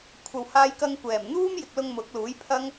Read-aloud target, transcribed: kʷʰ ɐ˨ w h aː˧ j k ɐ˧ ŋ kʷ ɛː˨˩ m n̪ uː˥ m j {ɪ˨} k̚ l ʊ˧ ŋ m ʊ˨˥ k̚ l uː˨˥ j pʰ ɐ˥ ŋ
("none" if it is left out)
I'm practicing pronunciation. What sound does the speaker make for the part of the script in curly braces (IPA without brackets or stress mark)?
ɪ˨